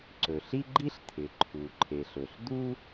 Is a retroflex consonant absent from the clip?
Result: yes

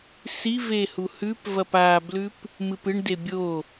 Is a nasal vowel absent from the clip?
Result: yes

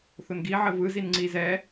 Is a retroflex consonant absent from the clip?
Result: yes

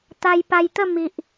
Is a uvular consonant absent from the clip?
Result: yes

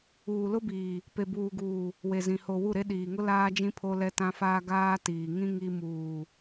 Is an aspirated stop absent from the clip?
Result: no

